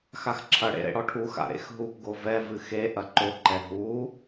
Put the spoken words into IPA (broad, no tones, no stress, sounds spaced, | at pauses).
x a x ǁʰ ɐ ɽ ḛ ɾ ḛ ɽ ɔ ʈʰ u x a̰ ɾ ḛ x ɦ u p ɡ o v ɛ v ɨ x e ʔ ɐ ǃ o ǃ ɛ ɦ u